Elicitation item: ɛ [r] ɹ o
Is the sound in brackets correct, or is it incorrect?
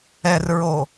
correct